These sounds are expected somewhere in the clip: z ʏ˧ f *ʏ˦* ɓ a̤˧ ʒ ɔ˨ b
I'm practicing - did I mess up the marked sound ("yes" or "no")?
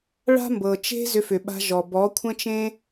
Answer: yes